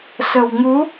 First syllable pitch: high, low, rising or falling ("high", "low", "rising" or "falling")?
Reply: low